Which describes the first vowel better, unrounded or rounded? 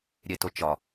unrounded